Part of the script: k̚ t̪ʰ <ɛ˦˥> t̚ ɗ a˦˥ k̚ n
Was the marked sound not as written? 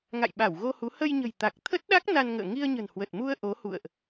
yes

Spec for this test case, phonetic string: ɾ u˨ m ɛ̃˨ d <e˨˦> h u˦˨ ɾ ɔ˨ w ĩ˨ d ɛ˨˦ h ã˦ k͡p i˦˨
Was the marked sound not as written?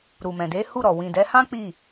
no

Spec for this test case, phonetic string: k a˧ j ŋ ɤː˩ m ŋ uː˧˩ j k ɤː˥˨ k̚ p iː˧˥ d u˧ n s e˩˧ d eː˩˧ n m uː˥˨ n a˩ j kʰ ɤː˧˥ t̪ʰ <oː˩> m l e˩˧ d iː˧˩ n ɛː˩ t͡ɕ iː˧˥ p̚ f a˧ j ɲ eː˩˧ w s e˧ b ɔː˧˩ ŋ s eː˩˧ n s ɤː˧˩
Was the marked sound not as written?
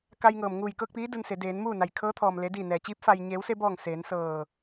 yes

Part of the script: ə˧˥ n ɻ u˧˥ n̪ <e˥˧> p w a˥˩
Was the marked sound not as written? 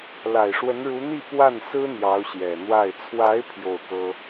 yes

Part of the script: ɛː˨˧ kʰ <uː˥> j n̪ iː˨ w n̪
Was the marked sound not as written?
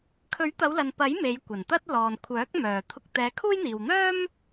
no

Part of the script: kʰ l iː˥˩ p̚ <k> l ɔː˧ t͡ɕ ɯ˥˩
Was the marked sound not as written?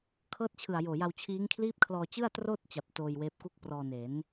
yes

